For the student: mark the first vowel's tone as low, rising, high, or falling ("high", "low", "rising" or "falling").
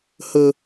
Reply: high